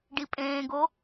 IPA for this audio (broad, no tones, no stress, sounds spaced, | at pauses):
ɖ i pʼ ẽː ɡ o